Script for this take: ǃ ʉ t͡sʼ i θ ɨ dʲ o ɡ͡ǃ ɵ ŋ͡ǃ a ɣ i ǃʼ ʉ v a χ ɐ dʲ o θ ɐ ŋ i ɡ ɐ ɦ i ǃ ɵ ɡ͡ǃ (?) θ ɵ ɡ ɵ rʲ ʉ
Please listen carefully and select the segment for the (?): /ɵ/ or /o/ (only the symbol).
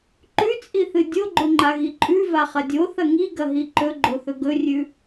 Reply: o